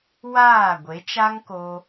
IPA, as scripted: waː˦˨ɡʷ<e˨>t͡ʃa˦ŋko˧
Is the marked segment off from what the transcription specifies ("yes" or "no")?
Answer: yes